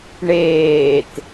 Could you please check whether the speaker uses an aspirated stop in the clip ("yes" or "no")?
no